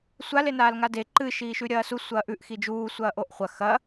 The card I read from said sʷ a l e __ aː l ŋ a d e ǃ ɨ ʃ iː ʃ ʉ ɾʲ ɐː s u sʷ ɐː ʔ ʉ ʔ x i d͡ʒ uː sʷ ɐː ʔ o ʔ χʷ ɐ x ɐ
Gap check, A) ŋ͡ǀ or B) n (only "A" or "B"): B